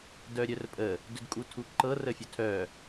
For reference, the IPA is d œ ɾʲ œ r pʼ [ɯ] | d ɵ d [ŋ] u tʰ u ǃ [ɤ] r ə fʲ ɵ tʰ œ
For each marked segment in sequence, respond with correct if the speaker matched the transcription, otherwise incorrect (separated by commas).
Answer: incorrect, incorrect, correct